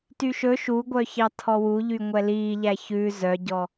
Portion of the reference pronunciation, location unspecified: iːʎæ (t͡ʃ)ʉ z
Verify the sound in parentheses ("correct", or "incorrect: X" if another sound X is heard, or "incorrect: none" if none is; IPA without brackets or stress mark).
incorrect: ç